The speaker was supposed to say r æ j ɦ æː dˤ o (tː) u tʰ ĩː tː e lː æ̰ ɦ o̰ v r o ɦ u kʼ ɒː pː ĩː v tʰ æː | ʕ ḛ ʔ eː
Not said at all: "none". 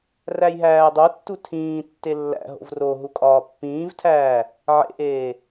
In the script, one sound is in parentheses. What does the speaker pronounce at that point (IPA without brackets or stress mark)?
tː